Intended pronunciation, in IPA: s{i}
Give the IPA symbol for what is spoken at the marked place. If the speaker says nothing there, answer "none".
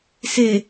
e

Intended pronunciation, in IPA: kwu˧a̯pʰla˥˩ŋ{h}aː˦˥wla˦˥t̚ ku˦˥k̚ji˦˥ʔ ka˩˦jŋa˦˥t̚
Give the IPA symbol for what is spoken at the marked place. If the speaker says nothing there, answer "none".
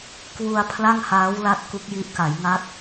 h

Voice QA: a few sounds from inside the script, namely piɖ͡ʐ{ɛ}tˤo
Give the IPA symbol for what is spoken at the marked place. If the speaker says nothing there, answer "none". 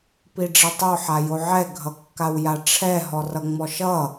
ɛ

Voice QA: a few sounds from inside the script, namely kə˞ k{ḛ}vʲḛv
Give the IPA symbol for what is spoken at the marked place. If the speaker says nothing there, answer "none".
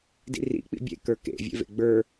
ḛ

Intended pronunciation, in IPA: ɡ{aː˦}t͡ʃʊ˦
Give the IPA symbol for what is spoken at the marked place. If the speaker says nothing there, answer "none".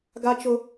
a˦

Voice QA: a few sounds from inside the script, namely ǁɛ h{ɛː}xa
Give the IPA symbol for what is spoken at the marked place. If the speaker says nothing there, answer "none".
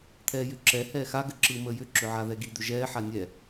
ɛː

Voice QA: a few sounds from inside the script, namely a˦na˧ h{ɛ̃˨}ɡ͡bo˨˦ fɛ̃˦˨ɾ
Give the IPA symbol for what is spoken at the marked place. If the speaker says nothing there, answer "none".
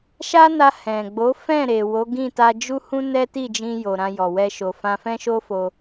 ɛ̃˨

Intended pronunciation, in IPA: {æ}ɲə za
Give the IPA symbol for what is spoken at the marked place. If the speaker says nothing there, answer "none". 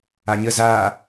a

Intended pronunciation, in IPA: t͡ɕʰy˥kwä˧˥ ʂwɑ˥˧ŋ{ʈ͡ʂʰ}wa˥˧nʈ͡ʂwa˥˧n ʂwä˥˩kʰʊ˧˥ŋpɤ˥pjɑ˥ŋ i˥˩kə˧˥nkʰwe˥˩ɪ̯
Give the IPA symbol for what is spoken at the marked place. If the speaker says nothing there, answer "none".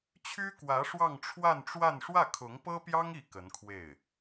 ʈ͡ʂʰ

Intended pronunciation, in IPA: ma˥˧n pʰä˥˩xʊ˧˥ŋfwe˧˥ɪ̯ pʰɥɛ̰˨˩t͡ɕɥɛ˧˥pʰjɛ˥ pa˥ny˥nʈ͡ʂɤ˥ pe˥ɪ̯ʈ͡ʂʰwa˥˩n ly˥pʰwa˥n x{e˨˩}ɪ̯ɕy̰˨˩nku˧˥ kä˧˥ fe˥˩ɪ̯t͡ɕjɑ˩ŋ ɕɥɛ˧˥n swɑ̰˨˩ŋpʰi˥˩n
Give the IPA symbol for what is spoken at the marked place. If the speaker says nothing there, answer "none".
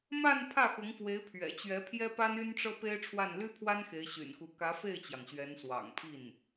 e˧˥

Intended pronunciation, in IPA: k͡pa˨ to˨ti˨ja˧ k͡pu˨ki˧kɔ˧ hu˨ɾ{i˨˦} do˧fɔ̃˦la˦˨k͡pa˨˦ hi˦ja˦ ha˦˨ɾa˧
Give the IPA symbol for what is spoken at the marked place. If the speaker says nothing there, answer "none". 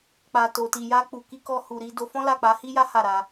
i˨˦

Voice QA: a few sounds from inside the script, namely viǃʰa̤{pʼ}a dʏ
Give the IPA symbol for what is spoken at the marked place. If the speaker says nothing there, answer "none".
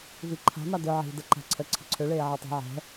m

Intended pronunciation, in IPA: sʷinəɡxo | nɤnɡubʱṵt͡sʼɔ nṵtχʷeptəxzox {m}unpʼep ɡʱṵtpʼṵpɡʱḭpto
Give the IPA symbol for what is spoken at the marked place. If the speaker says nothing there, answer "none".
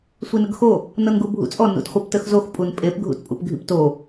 pʼ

